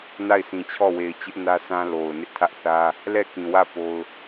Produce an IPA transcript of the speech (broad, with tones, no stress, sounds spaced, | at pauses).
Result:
n a˦˨ ɪ̯ s ĩ˨ t͡ɕʰ ɔ˦˨ w e˨ ɪ̯ t͡ɕ ɪ˦ ʔ n ä˦ s ã˦ l o˨ ʊ̯ n ɪ˦ ʔ tʰ ä˦ ʔ θ ä˦ | l ɛ˦˨ k ĩ˨ w ä˦˨ p o˦ ʊ̯